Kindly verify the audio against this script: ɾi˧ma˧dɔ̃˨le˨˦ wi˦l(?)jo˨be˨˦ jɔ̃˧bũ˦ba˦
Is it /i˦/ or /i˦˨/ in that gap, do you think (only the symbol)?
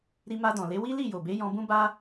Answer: i˦˨